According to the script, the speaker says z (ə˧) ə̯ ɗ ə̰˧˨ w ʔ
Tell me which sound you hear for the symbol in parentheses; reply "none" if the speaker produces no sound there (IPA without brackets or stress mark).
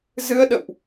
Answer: ɨ˧